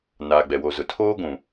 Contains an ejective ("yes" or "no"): no